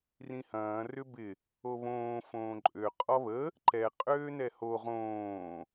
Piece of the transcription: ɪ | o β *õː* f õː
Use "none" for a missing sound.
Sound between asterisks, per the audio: õː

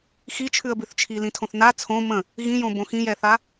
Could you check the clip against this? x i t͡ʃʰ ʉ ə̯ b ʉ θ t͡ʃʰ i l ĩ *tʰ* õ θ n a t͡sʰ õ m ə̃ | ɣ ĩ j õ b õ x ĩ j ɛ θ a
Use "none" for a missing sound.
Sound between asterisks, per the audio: tʰ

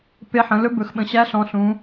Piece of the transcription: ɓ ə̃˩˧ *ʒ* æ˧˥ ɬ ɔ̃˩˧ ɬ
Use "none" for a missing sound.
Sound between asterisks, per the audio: ɕ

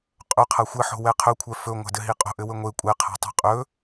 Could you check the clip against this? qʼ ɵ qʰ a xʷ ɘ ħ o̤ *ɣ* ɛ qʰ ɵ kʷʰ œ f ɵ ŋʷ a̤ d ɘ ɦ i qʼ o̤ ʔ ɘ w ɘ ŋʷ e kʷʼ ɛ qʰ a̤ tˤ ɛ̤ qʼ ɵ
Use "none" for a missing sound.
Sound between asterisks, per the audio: w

